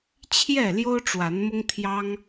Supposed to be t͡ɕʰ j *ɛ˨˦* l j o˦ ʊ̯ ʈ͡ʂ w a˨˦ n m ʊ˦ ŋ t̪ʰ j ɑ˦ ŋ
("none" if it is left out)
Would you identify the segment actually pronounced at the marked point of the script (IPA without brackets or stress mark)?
ɛ˥˨